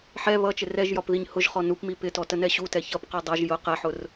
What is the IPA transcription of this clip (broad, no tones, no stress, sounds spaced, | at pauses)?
ħ ɛ β ʌ t͡ʃ ɪ r ɛ ʒ j ɒ p ð i ɲ h ʊ ʒ χ ɔ n u p m i p ɪ t ɔ t ə n ɛ ɕ u t ɛ ç ʌ p q ɜ dˤ ʌ ʒ j ʊ q ɛ ħ ʊ r